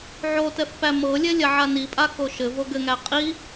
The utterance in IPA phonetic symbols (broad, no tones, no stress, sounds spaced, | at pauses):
ʕ o t ɛ f p æ m ɤ lʲ ɛ lʲ a ʕ a n i pʼ a k o ʃ ɘ v o ɡ ɘ ŋ æ qʼ i